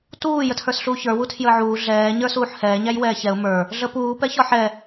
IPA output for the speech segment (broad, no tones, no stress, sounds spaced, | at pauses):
t uː j ə tʰ ə˞ s ɬ uː ç ə˞ w u tʰ j əː ʕ uː ɮ ɛː ɲ ə˞ s uː ħ h ɛː ɲ æ j w ɛː ç ɛ ʊ̯ m ə˞ | ɮ ə p uː p ɛ ç ɒ ħ ɛ